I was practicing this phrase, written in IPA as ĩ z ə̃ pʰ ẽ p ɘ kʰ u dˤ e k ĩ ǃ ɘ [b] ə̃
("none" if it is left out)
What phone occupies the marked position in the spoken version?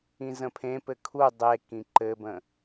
b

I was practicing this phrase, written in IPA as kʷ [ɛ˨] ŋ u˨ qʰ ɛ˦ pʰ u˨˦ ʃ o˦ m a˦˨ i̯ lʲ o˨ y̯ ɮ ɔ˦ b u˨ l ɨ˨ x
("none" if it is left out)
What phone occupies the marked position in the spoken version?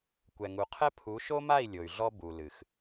ɛ˨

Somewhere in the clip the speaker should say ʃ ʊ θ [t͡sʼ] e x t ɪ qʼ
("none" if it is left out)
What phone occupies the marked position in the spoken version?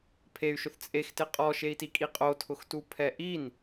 t͡sʼ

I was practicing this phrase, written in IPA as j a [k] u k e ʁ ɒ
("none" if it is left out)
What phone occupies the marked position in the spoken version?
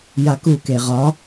k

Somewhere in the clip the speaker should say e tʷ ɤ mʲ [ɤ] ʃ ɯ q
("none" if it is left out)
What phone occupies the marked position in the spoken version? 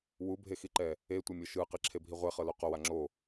ɤ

